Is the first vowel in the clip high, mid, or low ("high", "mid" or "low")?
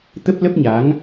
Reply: mid